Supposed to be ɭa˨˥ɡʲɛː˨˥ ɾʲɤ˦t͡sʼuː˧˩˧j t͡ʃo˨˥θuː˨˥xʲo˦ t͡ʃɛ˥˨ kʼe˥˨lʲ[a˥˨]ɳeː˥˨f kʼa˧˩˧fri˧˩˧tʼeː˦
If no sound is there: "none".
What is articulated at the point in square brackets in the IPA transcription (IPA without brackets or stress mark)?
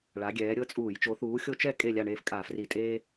a˥˨